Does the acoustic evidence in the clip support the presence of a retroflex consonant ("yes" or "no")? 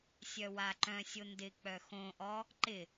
no